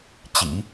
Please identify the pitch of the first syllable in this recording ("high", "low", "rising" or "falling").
low